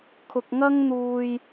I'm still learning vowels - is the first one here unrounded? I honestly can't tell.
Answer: no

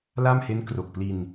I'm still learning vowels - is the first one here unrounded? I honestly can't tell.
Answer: yes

